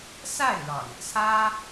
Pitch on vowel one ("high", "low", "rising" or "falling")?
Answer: falling